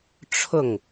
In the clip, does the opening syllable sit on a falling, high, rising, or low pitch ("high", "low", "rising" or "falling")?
falling